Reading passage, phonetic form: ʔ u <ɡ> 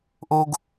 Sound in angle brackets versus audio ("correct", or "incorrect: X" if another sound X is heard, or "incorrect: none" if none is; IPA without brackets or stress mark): correct